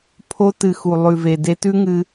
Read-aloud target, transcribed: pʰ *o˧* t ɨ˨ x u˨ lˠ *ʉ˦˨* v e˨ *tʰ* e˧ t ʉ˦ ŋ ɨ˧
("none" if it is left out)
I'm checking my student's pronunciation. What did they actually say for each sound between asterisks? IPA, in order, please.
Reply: o˧, ʉ˨, d

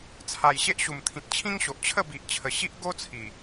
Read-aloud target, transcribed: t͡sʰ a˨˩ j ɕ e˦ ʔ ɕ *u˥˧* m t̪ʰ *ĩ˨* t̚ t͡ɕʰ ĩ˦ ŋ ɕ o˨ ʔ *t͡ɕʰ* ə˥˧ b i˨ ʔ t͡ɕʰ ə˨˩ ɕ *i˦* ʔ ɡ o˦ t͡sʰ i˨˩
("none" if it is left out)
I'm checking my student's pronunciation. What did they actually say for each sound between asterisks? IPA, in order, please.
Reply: u˨˩, ĩ˨, t͡ɕʰ, i˦

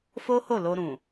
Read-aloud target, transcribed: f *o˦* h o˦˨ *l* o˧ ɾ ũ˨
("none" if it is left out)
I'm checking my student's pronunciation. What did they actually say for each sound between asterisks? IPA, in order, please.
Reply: o˦, l

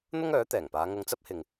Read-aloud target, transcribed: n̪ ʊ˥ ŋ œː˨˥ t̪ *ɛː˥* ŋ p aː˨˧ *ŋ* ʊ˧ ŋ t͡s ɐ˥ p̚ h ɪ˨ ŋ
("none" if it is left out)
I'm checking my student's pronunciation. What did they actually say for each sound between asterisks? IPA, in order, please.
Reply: ɛː˨˩, ŋ

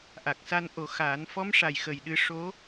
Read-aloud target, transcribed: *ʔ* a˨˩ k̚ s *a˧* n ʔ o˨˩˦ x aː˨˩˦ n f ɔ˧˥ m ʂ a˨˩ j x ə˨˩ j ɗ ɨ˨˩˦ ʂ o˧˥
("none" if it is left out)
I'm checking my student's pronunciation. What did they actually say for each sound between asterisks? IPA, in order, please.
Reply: ʔ, a˧

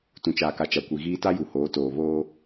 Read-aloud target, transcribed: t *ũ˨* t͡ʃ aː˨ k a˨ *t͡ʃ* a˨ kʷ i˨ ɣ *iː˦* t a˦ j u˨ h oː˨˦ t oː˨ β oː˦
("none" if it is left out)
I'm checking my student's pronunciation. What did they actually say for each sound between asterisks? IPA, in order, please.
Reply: ũ˨, t͡ʃ, iː˦

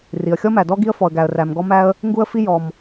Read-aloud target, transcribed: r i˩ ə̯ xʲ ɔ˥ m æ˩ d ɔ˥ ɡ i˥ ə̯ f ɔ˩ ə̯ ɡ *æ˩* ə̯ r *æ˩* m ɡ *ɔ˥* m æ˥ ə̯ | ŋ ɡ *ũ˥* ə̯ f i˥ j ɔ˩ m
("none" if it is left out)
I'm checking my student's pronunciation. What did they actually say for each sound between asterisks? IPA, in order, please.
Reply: æ˩, æ˩, ɔ˥, u˥

